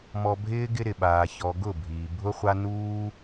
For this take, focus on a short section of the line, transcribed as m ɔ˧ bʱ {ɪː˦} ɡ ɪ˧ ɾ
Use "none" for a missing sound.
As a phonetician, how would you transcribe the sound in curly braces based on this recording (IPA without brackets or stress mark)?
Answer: ɪː˦